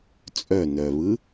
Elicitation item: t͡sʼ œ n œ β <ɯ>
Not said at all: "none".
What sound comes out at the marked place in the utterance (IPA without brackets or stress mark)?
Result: ɯ